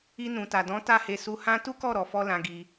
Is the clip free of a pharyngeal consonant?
yes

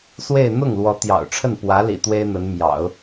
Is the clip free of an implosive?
yes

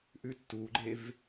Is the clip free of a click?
no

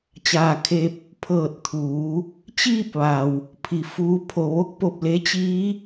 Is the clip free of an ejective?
yes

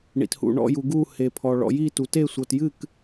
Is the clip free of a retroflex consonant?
no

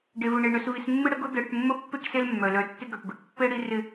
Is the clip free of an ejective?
yes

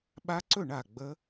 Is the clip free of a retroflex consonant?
no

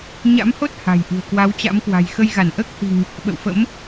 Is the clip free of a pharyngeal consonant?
yes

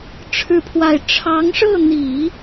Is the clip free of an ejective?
yes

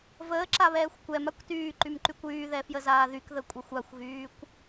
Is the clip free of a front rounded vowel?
no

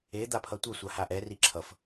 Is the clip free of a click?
no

